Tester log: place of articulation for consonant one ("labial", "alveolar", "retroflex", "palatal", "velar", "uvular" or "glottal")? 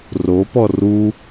alveolar